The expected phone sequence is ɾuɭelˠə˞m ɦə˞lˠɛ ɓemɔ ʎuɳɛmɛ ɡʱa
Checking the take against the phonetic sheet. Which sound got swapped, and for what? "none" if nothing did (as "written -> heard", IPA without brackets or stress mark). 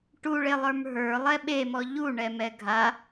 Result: ɾ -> ʈ